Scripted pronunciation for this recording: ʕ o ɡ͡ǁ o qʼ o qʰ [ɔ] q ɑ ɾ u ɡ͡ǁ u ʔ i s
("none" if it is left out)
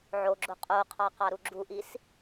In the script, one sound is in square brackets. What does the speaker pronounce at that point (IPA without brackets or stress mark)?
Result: ɑ